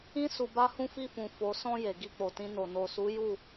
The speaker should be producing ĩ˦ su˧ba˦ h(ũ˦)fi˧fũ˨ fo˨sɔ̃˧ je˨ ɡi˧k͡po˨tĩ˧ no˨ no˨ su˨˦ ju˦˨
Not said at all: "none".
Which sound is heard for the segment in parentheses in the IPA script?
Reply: ũ˧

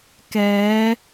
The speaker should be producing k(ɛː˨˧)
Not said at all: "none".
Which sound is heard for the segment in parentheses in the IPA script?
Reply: ɛː˨˧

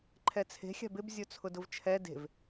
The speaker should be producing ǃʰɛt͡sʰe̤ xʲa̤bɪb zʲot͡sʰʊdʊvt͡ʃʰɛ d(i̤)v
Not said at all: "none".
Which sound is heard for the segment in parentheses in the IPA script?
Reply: e̤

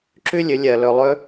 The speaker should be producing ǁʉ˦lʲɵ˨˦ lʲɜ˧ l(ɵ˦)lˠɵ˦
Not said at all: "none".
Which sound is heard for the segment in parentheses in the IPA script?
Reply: ɵ˧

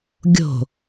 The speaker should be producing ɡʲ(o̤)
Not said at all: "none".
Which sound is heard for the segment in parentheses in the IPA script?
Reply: o̤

